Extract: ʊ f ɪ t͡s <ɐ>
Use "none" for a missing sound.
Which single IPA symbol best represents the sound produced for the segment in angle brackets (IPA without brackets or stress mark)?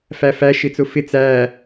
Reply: æ